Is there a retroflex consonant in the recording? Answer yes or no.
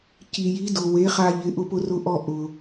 no